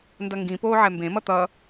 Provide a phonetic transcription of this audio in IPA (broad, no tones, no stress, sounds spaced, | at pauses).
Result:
n d ʌ ŋ ɡ ĩ p oː ʕ ɛ m b ẽ m ʌ t̪ ʌ